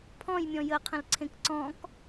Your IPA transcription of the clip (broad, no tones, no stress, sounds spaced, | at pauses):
pʰ ɔ̃ j mʲ ɔ̃ j ə qʰ ə̃ l ǀʰ ẽ k ǀ ɔ̃ k